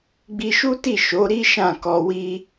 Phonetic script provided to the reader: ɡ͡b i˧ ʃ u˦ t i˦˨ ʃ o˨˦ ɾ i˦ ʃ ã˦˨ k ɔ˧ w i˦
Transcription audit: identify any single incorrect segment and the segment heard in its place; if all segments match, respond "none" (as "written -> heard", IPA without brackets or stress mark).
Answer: none